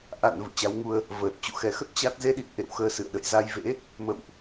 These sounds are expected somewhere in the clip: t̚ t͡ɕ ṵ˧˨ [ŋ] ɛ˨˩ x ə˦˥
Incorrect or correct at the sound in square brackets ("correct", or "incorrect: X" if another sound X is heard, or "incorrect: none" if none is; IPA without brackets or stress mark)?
incorrect: x